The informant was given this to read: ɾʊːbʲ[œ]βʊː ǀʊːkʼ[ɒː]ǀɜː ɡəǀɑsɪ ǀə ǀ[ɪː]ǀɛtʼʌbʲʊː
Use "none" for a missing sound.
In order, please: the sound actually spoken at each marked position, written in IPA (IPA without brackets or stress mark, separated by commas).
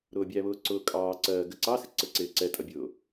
æ, ɑː, ɪː